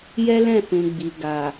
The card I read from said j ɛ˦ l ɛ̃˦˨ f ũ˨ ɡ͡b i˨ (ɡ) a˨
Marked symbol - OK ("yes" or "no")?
yes